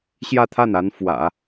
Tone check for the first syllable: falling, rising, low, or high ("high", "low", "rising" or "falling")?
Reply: falling